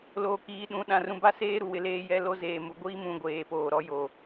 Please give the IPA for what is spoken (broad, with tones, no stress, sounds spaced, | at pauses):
l oː˨ k iː˨˦ ɗ ũ˨˦ ɗ ã˨ r ũ˨ b a˦ s eː˦ ɾ u˨ w ɪ˦ l eː˦ j ɛ˦ l o˦ z eː˨ m u˨ ɡʷ i˦ m ũ˨ ɡʷ eː˨ p oː˨ ɾ ɔ˦ j o˨